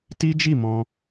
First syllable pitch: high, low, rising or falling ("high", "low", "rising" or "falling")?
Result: high